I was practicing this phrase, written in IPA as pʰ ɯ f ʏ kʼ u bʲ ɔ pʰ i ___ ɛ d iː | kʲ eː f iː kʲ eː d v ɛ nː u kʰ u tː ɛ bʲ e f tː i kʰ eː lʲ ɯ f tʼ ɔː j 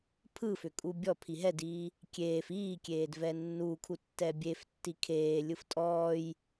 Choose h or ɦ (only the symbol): ɦ